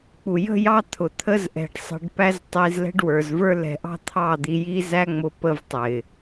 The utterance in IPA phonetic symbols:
k͡p u˨ j ə̤˦ j ɑ˦ t̪ʰ ʊ˨ t̪ʰ ə˦ z ʔ ɛ̤˨ ɖ sˤ ə̤˧ ɖ p æ˦ z tˤ i˧ z l ɛ̤˦ ɖ w ə˞˨ z v ə˞˦ l ɛ̤˧ ʔ ɑ̤˦ t̪ʰ ɑ˦˨ d̪ i˧ j i˦ z æ˦ ŋ͡m ʊ˦ p ə˦ v tˤ ɪ˨

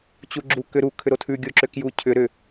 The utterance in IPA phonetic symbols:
t͡ɕ u ɡ͡ǁ u k ʏ ɾ u kʰ ʏ ɾ o tʰ ʉ ɡʲ o ǁ ʏ k j u cʰ ʏ ɾ ʏ

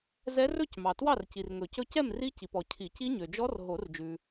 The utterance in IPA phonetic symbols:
z ɛ˦˥ r ɵ˥˨ c m ɑ˨ t w ɑ˥˨ r c i˨ r ŋ ɵ˨˩˦ c ɵ˦˥ c ɛ˥˨ m r i˦˥ c i˨ p ɔ˨ cʰ i˨˩˦ c i˦˥ ɲ ø˨ d͡ʒ ɔ˦˥ r ɦ o˨˩˦ r d͡ʒ ʉ˨

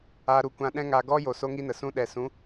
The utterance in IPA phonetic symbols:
aː˨ ɾ u˨ kʷ ã˨ ɗ ɛ̃˧ ŋ a˨ ɡ ɔ˦ j o˨ s o˦ ŋ i˦ n ə˨ s ũ˦ ɗ ɛ˨ s ũ˨˦

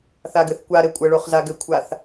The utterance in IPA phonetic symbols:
θ a ɡ ɘ θ kʷ a ɾ ɘ kʷʼ ə ɭ o χ z a ɡ ɘ kʷʰ a θ

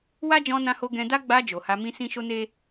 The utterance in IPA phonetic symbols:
w a˦ d͡ʒ ɔ̃˧ n ã˧ h o˧ ɡ ɛ̃˧ d a˦ ɡ͡b a˧ d͡ʒ o˨ h a˧ m ĩ˦ s ĩ˦ ʃ o˦ n e˦

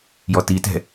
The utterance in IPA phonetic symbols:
j ɔ t i t ɛ̤

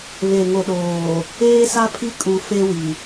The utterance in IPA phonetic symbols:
β e˨ ŋ o˨ ɗ oː˨ | eː˦ s a˦ pʰ i˦ kʼ u˨ f e˦ w i˨

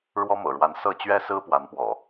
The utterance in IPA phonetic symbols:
ɻ w ɔ˦ m ɤ̰˨˩ ɻ w a˨˦ n s ɤ˥˨ t͡ɕ ɥ ɛ˦ s ɹ̩˦ p w a˨˦ n p w ɔ̰˨˩

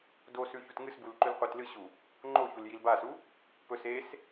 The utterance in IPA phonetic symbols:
d o s ʉ ç u t ŋ ɨ s b u l ǃ ʉ l qʷ e t l ɨ ɕ u | ŋ͡ǃ o ç u l j i l b a s u | p ɵ s e s

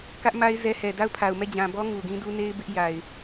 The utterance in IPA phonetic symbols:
k ä˦ ʔ m a˦ ɪ̯ z ɛ˦ h ɛ˨ d a˦˨ ʊ̯ pʰ a˨ ʊ̯ m ɛ˦˨ d͡ʑ ã˨ b ɔ˦ ŋ u˨ ɡ ĩ˦ d u˦ n e˦ ɪ̯ b ɪ˦ ʔ j a˨ ɪ̯

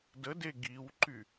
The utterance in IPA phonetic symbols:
d ə d e ɡ i w ǃ y

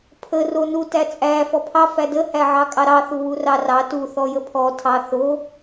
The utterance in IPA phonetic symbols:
pʰ ə r o n u t æ t͡sʼ æ f ɔ pʰ ɑ f æ d ə h æ ʕ ɑ kʼ ɑ ɾ ɑ θ u w u r ɑ r ɑ t u θ ɔ j ə pʰ ɔ tʰ ɑ θ o

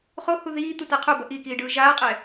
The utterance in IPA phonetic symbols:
χ o h u ð iː t̪ u t a qʰ o b ʌ ʔ i k iː ɖ ɯː ʒ aː qʼ ɛ

